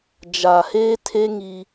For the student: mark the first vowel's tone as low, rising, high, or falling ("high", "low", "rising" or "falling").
low